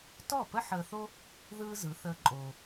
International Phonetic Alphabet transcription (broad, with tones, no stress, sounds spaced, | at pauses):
t ɔ˥˩ p ə˥ ħ əː˧ θ o˥ | ð ɯː˥ z ɯ˩˥ θ əː˧ ǃʼ oː˩